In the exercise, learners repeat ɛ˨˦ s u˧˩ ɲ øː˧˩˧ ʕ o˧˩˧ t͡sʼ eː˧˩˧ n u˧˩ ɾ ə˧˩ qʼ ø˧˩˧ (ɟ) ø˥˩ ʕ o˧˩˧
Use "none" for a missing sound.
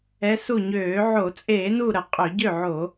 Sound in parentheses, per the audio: ɟ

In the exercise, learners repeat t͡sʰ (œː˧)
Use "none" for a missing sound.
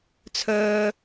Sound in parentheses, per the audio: œː˧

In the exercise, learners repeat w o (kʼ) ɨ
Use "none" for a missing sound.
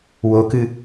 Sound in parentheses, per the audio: k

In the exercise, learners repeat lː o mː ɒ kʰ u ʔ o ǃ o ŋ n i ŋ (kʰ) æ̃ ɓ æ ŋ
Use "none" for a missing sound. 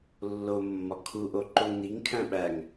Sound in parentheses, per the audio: kʰ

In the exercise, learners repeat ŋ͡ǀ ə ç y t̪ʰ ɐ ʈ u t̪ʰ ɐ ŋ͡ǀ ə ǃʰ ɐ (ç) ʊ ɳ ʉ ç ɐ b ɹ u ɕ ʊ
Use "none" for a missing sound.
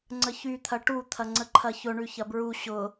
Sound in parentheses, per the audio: ç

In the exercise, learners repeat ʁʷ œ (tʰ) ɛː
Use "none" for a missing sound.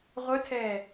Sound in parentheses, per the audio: tʰ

